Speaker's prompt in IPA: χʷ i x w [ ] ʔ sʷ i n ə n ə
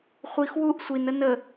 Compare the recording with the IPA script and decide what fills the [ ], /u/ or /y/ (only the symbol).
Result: u